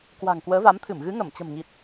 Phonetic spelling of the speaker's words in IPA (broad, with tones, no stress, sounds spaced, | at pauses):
k w a̤˨˩ ŋ k w əː˨˦ v a˨˦ m t̪ʰ ɨ˧˩ m ɣ ɨ˨˦ ŋ ə˧˩ m t͡ɕ ə̤˨˩ m ŋ i˨˩ t̚